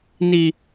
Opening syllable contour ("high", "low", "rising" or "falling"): low